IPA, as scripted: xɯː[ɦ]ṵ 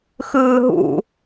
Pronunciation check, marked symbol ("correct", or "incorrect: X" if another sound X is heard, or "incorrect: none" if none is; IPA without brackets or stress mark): correct